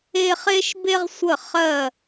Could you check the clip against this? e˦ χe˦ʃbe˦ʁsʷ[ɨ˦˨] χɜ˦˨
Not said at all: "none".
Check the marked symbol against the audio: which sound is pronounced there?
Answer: ə˦˨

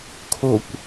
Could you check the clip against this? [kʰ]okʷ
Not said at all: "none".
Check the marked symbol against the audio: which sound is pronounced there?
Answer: kʰ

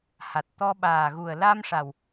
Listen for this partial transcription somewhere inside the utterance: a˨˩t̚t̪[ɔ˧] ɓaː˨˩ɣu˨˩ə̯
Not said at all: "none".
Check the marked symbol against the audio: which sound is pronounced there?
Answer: ɔ˧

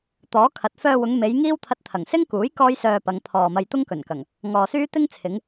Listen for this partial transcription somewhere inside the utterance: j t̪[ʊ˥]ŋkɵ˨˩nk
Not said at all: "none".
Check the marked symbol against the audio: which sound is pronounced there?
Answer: ʊ˥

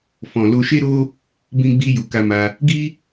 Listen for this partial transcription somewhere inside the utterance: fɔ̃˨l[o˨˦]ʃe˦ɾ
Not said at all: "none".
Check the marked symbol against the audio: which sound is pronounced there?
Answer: o˧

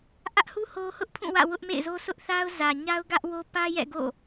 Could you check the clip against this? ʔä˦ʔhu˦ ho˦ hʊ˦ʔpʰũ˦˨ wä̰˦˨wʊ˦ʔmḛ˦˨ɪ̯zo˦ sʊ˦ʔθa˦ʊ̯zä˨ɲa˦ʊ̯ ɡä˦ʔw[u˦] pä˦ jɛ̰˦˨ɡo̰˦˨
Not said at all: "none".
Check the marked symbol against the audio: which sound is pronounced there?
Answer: o˦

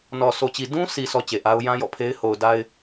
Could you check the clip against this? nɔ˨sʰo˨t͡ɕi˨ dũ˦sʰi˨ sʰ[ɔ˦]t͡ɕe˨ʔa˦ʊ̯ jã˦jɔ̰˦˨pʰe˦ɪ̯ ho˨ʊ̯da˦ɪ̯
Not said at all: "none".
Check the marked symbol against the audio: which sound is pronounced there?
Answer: ɔ˦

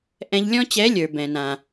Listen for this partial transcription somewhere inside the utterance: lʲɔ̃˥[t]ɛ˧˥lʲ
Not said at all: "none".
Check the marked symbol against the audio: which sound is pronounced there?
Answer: t͡ɕ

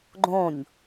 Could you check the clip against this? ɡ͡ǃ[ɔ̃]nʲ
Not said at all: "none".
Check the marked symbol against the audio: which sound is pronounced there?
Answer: õ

